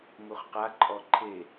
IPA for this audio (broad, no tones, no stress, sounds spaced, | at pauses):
m u χ q a ǃʼ ɔ ǃʰ e